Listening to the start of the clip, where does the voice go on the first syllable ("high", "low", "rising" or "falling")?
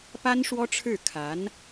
high